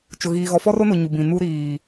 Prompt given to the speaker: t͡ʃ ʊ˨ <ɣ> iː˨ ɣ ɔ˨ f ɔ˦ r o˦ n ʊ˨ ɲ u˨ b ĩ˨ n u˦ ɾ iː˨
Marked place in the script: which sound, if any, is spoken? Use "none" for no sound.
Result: ɣ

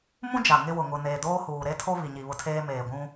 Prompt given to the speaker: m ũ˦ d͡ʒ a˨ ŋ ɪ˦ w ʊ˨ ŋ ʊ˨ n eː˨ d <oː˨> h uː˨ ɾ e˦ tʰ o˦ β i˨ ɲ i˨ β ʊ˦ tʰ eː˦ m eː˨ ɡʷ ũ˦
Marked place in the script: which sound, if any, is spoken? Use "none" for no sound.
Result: oː˦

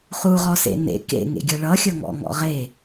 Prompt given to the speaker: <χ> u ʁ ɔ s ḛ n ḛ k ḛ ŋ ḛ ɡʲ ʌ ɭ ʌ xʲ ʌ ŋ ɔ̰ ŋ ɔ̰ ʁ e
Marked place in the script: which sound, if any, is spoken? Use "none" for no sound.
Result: χ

